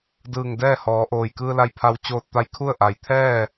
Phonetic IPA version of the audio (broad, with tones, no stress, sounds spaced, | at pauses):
d ɯː˧˩ ŋ d ɛː˥˨ h ɔː˩˧ ʔ oː˩ j k ɯː˧ l a˧ j pʰ a˧ w t͡ɕ oː˧ t̚ t̪ a˧ j kʰ u˥˨ ə̯ ʔ a˩ j t̪ʰ ɛː˥˨